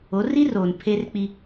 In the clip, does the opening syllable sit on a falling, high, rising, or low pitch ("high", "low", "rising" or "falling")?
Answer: rising